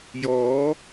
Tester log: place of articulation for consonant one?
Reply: palatal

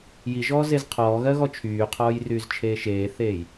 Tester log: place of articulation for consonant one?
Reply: palatal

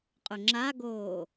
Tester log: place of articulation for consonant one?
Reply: uvular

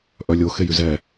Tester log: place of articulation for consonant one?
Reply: glottal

